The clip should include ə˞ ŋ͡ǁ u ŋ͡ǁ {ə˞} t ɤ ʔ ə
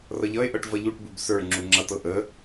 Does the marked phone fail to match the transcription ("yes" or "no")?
yes